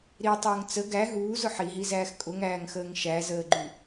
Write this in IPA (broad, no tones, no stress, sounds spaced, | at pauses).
ɾ i tˤ ʊː ŋ t͡s ə ɡ æ ɦ uː z ʊ ħ i ɦ i z æː x kʼ ʊ ŋ æː ŋ x əː ŋ ʃ æ z əː ɡ͡ǃ y